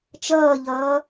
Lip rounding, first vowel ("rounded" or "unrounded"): unrounded